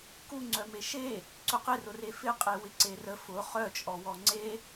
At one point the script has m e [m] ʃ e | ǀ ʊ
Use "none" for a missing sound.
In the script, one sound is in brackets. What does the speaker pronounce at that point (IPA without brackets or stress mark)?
none